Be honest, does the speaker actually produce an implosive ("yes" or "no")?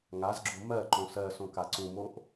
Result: no